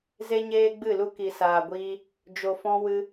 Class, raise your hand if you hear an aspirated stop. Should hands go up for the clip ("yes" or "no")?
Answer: no